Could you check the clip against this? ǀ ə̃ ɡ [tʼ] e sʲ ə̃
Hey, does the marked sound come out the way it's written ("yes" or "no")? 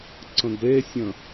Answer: no